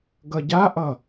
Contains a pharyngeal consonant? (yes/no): no